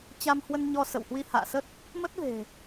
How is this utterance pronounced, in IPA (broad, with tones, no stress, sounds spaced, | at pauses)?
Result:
t͡ɕ a˧ m h w ə˧ n ɲ ɔ˧ s ə̰˧˨ w h w i˧ h a̰ː˧˨ s ə˦˥ t̚ | m ə˦˥ t̚ v e̤˨˩